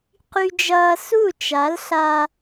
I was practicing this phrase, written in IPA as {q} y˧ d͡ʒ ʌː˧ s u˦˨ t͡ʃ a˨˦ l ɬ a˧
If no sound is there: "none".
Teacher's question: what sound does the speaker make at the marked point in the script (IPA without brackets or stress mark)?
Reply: q